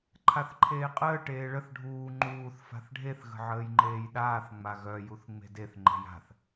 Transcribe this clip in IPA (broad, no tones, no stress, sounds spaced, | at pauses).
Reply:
ǃʰ a θ ǃʰ eː qʼ əː ʈ eː ɭ ə θ ɖʱ uː ŋ͡ǃ uː θ f a̤ θ ɖʱ e θ ɣ ə̤ ʕ əː j ŋ͡ǃ eː j ɗ aː θ ŋ͡m a ɣ œ j u θ ŋ͡m e̤ d e θ ŋ͡ǃ e̤ j a̤ θ